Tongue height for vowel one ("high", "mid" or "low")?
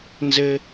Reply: mid